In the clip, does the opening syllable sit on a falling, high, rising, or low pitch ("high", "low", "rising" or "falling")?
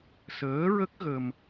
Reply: rising